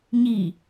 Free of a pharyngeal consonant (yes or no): yes